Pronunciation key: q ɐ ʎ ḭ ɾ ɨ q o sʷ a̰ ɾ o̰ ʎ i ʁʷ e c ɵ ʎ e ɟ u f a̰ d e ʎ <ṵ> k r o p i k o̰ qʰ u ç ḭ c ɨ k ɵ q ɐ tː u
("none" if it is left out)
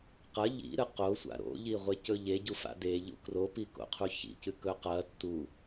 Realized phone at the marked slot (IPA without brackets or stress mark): ṵ